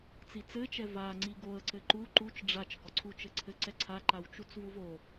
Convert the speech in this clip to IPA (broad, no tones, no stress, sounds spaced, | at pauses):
t͡s i t͡s ɘ t͡ʃ ɛ v a ŋ͡ǀ i ɡ o ə̯ ǀ ɘ ǃ u ǃ u t͡ʃ ɖ͡ʐ a t͡ʃ ɡ ɔ ǀʰ u t͡ʃ ɘ ǀʰ ɘ ǀ ɛ ǀʰ a ǃ a w t͡ʃ u t͡s v u v o